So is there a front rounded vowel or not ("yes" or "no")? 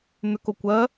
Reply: yes